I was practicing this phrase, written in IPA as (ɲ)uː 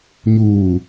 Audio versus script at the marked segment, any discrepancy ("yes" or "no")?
no